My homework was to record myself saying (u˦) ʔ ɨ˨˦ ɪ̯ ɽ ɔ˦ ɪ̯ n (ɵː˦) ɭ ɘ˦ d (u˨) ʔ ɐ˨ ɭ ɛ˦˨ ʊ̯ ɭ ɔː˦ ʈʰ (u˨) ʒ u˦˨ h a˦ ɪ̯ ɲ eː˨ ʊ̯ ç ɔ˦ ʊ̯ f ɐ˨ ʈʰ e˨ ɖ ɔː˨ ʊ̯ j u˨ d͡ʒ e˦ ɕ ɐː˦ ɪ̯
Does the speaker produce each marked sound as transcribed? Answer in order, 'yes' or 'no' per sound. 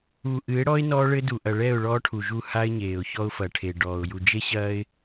no, no, yes, yes

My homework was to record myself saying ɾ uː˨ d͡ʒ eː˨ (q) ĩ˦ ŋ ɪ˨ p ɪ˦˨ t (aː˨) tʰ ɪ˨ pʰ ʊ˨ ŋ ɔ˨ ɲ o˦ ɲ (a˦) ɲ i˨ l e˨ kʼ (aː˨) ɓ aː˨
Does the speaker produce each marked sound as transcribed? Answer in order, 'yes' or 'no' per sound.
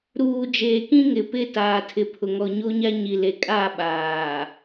no, yes, yes, no

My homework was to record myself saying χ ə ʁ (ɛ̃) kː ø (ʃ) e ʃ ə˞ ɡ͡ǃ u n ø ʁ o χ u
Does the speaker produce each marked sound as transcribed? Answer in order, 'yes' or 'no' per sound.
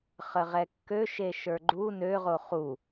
no, yes

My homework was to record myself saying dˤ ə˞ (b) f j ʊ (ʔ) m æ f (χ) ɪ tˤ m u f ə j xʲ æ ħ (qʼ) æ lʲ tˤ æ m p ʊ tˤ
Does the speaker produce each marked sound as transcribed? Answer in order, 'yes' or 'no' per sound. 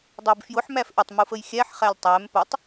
yes, no, no, no

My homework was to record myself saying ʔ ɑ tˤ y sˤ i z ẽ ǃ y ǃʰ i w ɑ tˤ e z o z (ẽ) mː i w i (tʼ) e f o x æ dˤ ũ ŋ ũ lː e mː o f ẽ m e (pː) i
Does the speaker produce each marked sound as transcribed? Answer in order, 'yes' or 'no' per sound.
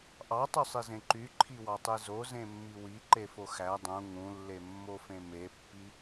yes, no, yes

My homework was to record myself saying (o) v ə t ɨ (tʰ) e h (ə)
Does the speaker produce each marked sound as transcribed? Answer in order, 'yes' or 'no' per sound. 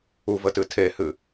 no, yes, no

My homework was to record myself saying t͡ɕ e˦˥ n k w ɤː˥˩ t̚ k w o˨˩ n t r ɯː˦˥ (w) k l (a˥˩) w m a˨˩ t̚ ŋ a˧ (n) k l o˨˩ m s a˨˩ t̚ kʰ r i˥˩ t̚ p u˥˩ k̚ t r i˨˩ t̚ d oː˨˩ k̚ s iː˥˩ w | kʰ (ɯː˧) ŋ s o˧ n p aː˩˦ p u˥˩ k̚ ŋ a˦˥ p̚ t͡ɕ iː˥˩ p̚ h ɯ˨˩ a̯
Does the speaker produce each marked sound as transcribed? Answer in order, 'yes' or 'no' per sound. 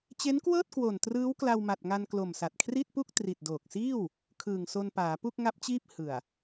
yes, no, yes, no

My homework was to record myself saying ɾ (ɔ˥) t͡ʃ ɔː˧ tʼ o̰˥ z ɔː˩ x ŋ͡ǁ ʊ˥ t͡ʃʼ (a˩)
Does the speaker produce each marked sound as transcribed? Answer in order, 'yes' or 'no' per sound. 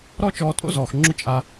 yes, no

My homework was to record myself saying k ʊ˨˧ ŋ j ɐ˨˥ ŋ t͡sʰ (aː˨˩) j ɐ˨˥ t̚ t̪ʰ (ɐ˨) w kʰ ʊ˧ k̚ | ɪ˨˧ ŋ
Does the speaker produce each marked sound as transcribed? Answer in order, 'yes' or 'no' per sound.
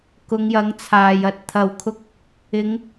no, yes

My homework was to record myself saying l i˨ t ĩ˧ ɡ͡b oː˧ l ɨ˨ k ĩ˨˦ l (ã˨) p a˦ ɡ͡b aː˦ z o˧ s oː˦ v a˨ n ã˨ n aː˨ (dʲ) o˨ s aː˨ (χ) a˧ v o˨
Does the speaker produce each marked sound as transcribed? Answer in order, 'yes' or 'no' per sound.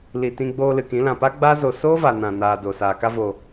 yes, no, no

